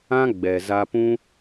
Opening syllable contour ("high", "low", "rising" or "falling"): high